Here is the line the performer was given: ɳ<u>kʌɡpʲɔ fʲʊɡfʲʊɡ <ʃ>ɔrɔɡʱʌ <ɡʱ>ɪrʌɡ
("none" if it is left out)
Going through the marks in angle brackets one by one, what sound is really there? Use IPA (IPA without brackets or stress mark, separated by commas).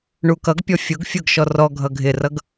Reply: u, ʃ, ɡʱ